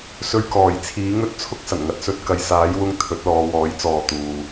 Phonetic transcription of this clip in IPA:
s ɵ˧ ɥ k ɔː˨˩ j t͡sʰ iː˨˥ ŋ ɵ˥ t̚ t͡sʰ ʊ˥ k̚ s ɐ˨˩ n ŋ ɐ˨ t̚ s ɵ˧ t̚ k ɐ˨˧ j s aː˨˥ j w ʊ˧ ŋ t̪ʰ ɵ˨˥ t̚ l ɔː˨˧ w ɔː˨˥ j t͡s ɔː˨ t̪ uː˨

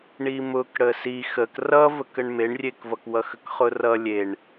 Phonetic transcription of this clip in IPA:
ɳ i m ʊ k ɽ ə s i x ə k r ʌ v ə k ə ɳ m e ɳ rʲ e k v ʌ k w ʌ x ə k χ ʊ r ʌ lʲ e ɳ

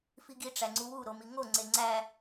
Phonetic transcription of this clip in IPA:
f i ɡ i ʈ͡ʂ æ ŋ͡ǀ u w u ɾ o m i ŋ o ŋ͡ǀ e ŋ͡ǀ æ

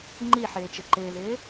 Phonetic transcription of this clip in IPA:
ŋ͡ǃ i ħ ɪː t͡ʃ ɪ ǃ ɪː ð ɪː

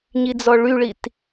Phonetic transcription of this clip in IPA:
ɲ i d͡z ɔ ɭ y ɭ i t

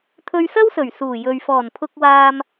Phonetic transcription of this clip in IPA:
t̪ʰ ɵ˧ ɥ s ɐ˥ w s ɵ˨˩ ɥ s uː˨˩ j ɵ˨ ɥ f ɔː˨˩ n pʰ ʊ˧ k̚ w aː˧ m

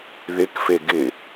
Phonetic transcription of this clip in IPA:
ð ɪ k f e ɡ ɪ

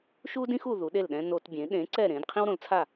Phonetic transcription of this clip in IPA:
ʃ u˥ d ĩ˥ x u˩ ð u˩˥ ɗ e˥˩ l ɗ ɛ̃˥ n o˧ t bʲ ẽ˩˥ ɗ ẽ˩˥ ǀ ɛ˥˩ ɾ ẽ˩˥ d qʰ ĩ˥ w ɾ õ˩˥ l t͡sʰ a˥˩

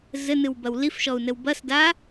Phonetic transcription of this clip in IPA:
z ɘ n ɨ w b ɐ w l i f ʃ ɔ u̯ n ɘ w b ɐ s d a

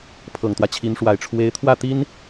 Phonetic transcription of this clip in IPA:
pʰ ɤ˨˩ ŋ t̪ w ä˦ t͡ɕʰ i˧˥ n ʂ w a˨˩ ɪ̯ ʈ͡ʂʰ w e˧˥ ɪ̯ t̪ʰ w ä˥˩ t̪ i˥ n

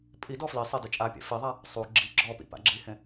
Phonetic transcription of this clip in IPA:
pʼ i d ɔ f l i sˤ e d ʉ t͡ʃʼ a pʲ a̰ f i ðˤ a | sˤ u ɡ͡ǁ i ɡ͡ǁ ɔ p ḭ p a̰ ɡ͡ǁ i h ẽ

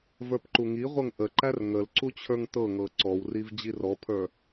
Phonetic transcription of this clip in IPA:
v ə˞ p ǃ u ŋ i ʁʷ ɤ ŋ ʔ ə ǃ æ r ŋ ə l ǀ u t͡ɕʰ ə˞ ŋ t ɤ ŋ ɤ ǀ ɔ w r i v d͡ʑ i r ɔ pʰ ə˞

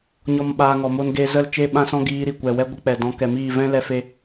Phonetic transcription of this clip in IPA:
ɲ ɔ˦ m ɓ aː˧ ŋ ɔ˨ m o˧ n ɡ e˧ z ə˦˨ l t͡ʃ e˦ ɓ ã˦ s ɔ̃˦ ɡ iː˧ ɾ i˨ kʷ ɛ˨ w ɛ˧ ɡʷ ə˧ k͡p ɛ˨ d ɔ̃˨˦ k ɛ˨ m iː˦˨ v ɛ̃˦ l ɛ˧ f e˧

